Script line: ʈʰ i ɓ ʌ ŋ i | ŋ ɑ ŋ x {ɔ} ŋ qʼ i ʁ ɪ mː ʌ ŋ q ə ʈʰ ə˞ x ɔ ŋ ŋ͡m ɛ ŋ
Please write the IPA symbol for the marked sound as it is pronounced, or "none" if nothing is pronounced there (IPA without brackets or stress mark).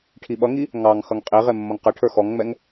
ʌ